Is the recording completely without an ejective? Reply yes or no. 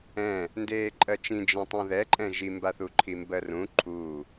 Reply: no